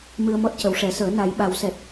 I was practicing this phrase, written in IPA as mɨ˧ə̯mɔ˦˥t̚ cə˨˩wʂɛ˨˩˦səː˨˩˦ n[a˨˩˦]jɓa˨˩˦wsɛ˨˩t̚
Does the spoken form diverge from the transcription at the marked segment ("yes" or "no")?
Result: no